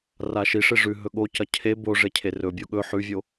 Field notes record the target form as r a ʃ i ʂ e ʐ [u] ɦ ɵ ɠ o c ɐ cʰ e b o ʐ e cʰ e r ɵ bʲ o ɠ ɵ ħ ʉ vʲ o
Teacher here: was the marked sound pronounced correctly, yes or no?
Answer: no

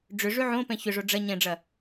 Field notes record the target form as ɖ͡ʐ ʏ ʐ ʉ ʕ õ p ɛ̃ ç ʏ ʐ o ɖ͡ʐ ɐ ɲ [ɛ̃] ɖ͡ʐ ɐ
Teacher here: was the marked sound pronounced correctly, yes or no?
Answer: yes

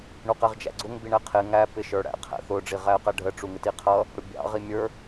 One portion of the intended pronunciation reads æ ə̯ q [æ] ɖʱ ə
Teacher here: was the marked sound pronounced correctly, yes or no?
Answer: yes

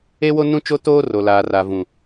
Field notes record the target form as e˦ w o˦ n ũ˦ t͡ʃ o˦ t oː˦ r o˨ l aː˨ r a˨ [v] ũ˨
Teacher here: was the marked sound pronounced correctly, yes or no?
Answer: yes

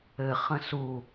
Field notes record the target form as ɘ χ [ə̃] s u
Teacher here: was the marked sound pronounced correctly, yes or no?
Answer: yes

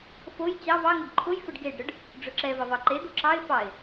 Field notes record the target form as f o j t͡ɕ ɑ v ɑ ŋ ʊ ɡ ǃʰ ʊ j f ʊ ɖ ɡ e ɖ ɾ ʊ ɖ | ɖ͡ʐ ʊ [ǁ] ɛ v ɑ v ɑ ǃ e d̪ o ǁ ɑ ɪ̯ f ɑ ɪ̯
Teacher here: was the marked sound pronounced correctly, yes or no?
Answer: yes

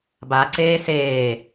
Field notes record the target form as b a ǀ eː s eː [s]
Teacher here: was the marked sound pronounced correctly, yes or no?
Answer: no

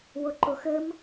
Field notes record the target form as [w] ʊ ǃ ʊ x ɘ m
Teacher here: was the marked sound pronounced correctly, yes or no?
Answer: yes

